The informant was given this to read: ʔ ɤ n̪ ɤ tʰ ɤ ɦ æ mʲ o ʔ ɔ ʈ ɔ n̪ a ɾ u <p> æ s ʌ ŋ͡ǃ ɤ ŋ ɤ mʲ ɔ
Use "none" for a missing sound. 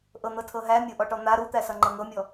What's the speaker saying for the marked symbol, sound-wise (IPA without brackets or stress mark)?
t̪